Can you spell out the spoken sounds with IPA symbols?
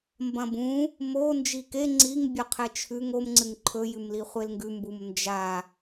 m b ɐ̃ b ũ | m o n d͡ʒ i k e ŋ͡ǀ i ŋ bʲ ɵ qʰ e t͡ʃʰ ʉ ŋ o m ŋ͡ǀ ɨ ŋ ǃʰ ɵ j ʉ m l i χʷ e l ŋ ɡ ʉ m b u m n d͡ʒ a

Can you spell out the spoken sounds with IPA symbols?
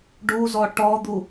ɖ u z ɔ ʈ ɔ d̪ u

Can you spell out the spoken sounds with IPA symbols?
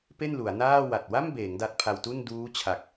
p e˥˩ n l u˩˦ a̯ n aː˥˩ w a˨˩ t̚ w a˥˩ m b eː˩˦ ŋ d a˦˥ t̚ pʰ a˧ w t u˥˩ n d uː˦˥ t͡ɕʰ a˨˩ k̚

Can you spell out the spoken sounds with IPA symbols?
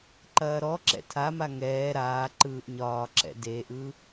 ǃ ɐː ɾ ɔ ǁ ɛ̰ tʰ a m a ŋ ɛː ɾ aː ǃ ɯː ʔ ɲ ɒː ǁ ɛ̰ d e ʔ ɯ

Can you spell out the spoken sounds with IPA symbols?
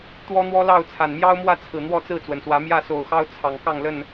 t̪ w ɔ˦ n̪ w ɔ˦ l ɑ˥˨ ʊ̯ t͡sʰ a˨˩ n m j ɑ˦ ʊ̯ m w ä˥˨ t͡sʰ ɹ̩˨˩ n̪ w ɔ˥˨ t͡s ɹ̩˥˨ t͡s w ə˩ n s w ä˨˦ m j ä˥˨ s o˨˩ ʊ̯ x ɑ˦ ʊ̯ t͡sʰ ɑ˨˩ ŋ k ɑ˥˨ ŋ l ə˥˨ n

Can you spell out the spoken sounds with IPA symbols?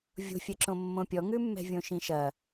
vʲ o̤ fʲ ɛ ǁ õ mː õ pʲ ɔ ŋ ʉ mː ɛ̤ vʲ õ ʃ ĩ ʃ ɐ

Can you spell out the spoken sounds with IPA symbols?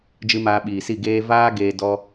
d͡ʒ ɨ˧ m aː˧ ɓ iː˨ s i˦˨ ɡ eː˧ v aː˦ ɡ eː˧ d ɔ˧

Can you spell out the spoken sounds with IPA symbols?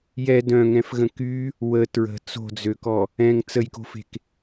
j ɛ d œ̃ ŋ ɛ̃ f ɣ ə̃ k y | w ə t ɹ ə̤ t͡s o̤ d͡z ø k ɔ | ɛ̃ ŋ t͡s ə j k o̤ f e̤ k

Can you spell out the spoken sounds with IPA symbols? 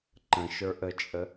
ǃ ə̃ ʃ ə˞ ʔ ə t͡ʃʼ ə

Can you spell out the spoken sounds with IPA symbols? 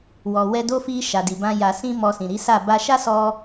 w ɔ˨ w ɛ˧ d o˦ f i˧ ʃ a˨ d i˨ b ã˧ j a˨ s ĩ˧ m ɔ˧ s ĩ˨ ɾ i˨˦ s a˦˨ b a˧ ʃ a˦ s ɔ˧

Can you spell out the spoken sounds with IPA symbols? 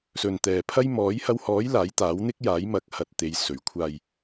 s ɵ˨ n t̪ ɛː˨ pʰ ɐ˥ j m ɔː˨˥ j h ɐ˧ w h ɔː˨˥ j l aː˨˥ j t̪ aː˨˥ w n̪ ɪ˥ k̚ j aː˨˥ j m ɐ˨˥ k̚ h ɐ˧ t̚ t̪ e˨˧ j s ɵ˨˩ ɥ kʷʰ aː˨ j

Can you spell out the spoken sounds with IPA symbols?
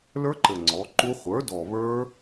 l ə˞˦˥ ǃ ɘ˨˩ ŋ͡ǀ ɔ˩˥ ǃ u˦˥ χʷ ə˞˩˥ d ɔ˨˩ β ə˞˦˥

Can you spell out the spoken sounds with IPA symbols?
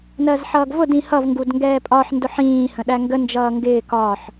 n ɜ z ħ ʌː ɡ v ʊ d ĩ h ʌ v ŋ ɡ u d ŋ ɡ ɛː pʼ ɒ ħ n d ʊ ħ ĩː h ə̃ ɗ æ ŋ ɡ ə n d͡ʒ ʌː ŋ ɡ ɪː k ɒː ħ

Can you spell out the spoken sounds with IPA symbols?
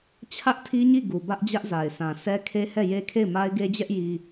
t͡ɕʰ ä˦ ʔ tʰ i˦ ɲ i˦˨ ɡ u˨ b ä˦ ʔ d͡ʑ ä˦ ʔ z a˨ ɪ̯ s ã˨ s ɛ˦ kʰ e˦ h ɛ˦˨ j e˦ kʰ e˦˨ ɪ̯ m a˦ ɪ̯ ɡ e˦ d͡ʑ ɛ˦ ʔ j i˦

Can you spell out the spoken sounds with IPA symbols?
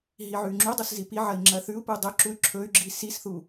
ɦ i ʕ ʉ y̯ ŋ͡ǁ u dˤ u s z i p i ʕ ɐ i̯ ŋ͡ǁ ɐ θ ʉ u̯ p u dˤ ɵ ǁ u y̯ ǁʰ ɵ y̯ ɡ͡ǁ i s i s θ u

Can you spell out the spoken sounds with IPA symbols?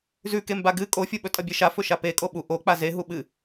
z ʉ k e m b a ɡ ɨ kʼ o fʲ u ɓ ɵ tʼ ɐ bʲ e ʃ a f ɵ ʃ a p e kʼ o ɓ u ʔ o k͡p a z e ɦ u ɓ ɨ

